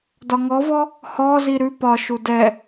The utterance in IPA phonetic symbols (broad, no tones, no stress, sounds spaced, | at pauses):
d ɒ ŋ ɔ v ɔ | h ɔ z i ɾ ʉ p ɒ ʃ u d ɛ